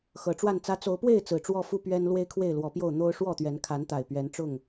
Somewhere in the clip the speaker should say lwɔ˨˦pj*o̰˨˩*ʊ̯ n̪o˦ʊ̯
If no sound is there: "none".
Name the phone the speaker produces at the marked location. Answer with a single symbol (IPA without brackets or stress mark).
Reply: o˥˨